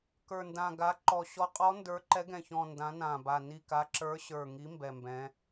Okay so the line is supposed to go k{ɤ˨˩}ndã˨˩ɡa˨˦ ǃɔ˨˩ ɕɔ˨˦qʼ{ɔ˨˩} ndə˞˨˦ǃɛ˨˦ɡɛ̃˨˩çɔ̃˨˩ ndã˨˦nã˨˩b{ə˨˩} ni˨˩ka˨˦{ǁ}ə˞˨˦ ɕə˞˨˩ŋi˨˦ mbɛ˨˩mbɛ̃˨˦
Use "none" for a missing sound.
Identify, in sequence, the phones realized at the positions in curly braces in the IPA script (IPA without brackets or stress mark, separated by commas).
ə˞˨˩, ɔ˨˦, a˨˩, ǁ